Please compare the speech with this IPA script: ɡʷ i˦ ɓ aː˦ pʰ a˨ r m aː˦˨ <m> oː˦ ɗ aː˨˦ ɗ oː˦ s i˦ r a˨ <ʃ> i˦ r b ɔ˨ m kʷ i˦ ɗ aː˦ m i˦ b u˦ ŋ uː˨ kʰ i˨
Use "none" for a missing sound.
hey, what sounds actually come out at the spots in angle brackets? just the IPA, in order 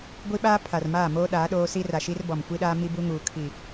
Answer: m, ʃ

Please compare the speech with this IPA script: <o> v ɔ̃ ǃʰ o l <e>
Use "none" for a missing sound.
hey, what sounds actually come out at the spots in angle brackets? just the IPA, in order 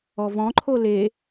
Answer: ɔ, e

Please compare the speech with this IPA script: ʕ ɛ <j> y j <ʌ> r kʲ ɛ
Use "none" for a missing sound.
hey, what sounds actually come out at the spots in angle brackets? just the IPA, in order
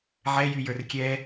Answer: j, ə˞

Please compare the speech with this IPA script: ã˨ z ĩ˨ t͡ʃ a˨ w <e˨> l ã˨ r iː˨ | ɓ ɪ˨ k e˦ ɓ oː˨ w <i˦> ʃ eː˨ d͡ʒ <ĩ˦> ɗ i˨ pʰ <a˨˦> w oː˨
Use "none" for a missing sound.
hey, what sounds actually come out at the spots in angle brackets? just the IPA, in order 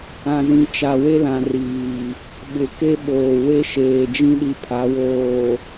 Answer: e˦, e˦, ĩ˦, a˨˦

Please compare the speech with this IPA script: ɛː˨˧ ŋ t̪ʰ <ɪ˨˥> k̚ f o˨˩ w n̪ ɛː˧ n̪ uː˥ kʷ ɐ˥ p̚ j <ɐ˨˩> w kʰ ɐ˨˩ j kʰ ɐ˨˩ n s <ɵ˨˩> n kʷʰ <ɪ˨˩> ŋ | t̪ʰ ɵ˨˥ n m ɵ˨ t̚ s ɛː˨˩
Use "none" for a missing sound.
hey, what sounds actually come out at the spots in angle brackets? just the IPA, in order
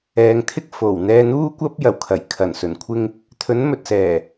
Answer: ɪ˥, ɐ˨˩, ɵ˨˩, ɪ˥

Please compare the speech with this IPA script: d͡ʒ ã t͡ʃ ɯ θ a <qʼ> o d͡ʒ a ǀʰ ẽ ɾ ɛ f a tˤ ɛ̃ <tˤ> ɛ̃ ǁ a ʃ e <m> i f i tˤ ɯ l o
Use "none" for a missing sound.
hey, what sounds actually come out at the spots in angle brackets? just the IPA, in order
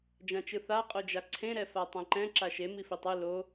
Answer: qʼ, ǃ, m

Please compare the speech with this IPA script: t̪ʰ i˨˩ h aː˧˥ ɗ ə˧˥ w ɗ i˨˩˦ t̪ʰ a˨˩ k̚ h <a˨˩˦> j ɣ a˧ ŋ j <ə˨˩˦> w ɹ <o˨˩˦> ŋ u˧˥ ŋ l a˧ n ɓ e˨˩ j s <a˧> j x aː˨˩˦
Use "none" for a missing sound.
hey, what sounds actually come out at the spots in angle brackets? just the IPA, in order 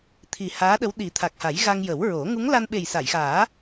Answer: a˨˩˦, ə˨˩˦, o˨˩˦, a˨˩˨

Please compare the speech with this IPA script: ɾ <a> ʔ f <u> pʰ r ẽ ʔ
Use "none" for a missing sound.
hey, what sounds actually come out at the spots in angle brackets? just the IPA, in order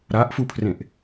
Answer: a, u

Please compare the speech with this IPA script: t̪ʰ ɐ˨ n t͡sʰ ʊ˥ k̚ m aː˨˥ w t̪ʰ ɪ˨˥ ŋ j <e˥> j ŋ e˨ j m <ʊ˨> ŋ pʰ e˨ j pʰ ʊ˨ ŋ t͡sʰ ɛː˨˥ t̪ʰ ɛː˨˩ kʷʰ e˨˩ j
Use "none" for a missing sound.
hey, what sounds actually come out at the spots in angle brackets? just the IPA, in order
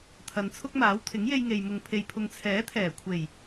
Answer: e˧, ʊ˨

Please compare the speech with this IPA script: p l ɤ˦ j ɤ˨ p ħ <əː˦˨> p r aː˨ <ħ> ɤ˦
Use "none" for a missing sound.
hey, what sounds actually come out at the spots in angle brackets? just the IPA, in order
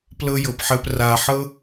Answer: əː˧, ħ

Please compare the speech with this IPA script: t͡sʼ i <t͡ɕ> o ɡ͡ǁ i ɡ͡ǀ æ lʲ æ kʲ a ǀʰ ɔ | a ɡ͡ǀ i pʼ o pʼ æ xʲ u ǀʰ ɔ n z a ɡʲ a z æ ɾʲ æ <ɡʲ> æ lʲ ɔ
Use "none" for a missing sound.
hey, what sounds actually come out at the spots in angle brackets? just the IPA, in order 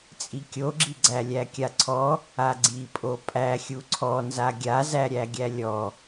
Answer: kʲ, ɡʲ

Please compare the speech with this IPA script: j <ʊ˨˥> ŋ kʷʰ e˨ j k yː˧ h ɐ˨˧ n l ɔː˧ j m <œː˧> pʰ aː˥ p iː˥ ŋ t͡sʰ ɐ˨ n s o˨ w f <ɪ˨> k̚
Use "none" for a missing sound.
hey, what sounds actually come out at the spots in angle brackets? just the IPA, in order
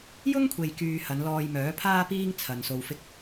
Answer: ʊ˥, œː˨˥, ɪ˧

